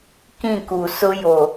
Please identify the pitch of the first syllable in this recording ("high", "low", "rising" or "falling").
falling